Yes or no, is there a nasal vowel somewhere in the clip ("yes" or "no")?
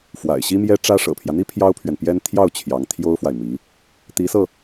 no